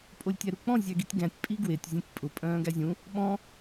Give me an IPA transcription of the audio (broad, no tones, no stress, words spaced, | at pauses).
pʼolʲtʲæɾuk͡pɔ̃ zʲæɡitʲɡæ̃tʲ pʼiɡwetʲ zʲæ̃tʲpʼʊ pʼœ̃ːɡæzʲũ | ɓɔ̃